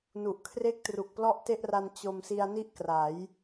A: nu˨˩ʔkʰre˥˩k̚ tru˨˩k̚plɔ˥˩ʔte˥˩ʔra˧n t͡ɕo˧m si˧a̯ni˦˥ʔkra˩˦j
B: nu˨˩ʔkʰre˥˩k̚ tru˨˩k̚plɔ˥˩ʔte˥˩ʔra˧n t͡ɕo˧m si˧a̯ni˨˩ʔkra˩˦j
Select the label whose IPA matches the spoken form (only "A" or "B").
A